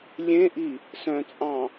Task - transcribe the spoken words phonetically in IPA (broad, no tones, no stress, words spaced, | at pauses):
lʲẽʔi | sœ̃t͡sʼɑ̃